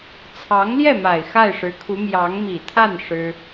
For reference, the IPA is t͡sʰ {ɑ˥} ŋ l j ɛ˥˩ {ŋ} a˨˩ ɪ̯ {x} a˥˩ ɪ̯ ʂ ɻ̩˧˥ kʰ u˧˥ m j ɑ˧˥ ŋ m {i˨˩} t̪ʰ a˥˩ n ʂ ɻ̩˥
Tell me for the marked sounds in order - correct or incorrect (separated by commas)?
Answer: incorrect, incorrect, correct, correct